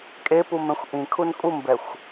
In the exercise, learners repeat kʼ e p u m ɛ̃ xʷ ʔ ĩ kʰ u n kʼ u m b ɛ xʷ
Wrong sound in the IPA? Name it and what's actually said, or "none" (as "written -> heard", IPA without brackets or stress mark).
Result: none